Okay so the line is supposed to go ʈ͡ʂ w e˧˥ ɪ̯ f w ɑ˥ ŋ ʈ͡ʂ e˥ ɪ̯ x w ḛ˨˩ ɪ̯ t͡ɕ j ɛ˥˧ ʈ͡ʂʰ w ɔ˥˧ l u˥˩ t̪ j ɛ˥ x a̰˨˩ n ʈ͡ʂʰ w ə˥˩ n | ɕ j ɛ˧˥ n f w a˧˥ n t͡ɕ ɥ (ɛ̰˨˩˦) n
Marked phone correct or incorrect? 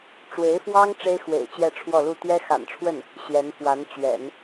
correct